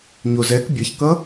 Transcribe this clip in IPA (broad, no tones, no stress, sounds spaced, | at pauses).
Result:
ɲ o z ɛ k bʲ ʌ ç k ʌ